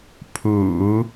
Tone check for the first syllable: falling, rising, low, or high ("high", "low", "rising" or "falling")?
low